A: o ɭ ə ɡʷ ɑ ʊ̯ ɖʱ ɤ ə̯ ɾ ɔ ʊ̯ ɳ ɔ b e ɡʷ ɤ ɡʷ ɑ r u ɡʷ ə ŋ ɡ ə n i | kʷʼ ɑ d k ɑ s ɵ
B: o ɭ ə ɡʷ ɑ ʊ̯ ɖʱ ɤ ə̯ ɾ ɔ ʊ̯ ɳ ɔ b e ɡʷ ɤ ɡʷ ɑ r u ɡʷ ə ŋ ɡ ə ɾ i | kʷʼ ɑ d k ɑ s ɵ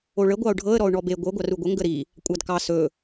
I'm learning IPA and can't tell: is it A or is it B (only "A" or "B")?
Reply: B